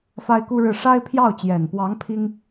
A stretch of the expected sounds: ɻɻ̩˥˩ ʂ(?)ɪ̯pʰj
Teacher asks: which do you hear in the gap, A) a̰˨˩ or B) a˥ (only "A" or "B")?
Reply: B